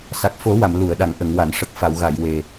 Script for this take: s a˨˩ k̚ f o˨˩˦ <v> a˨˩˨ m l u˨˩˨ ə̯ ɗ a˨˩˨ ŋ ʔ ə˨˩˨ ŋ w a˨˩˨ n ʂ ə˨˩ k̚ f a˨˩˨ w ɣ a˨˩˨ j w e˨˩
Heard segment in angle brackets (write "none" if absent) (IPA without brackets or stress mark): w